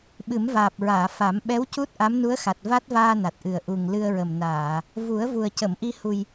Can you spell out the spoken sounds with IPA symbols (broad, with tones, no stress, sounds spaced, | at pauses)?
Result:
ɓ ɨ˨˩˦ m v aː˨˩ p̚ ɹ aː˨˩˨ f a˨˩˦ m ɓ ɛ˧˥ w c u˦˥ t̚ ʔ a˧˥ m n u˧˥ ə̯ x a˨˩ t̚ v a˦˥ t̚ v aː˧ n a˨˩ t̚ ʔ ɨ˨˩ ə̯ ʔ u˨˩ ŋ l ɨ˧ ə̯ ɹ ə˨˩ m n aː˨˩˨ | v u˨˩˦ ə̯ v u˨˩ ə̯ c ə˨˩˨ m ʔ i˧ h u˨˩ j